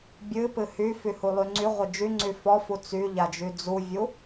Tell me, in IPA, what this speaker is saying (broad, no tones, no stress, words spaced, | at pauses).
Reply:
bʲɨpɨ hyfyhulˠy ŋ͡ǀyʁʷɪ d͡ʒyŋ͡ǀy fɔfu t͡syʎad͡ʒy d͡zuvʲu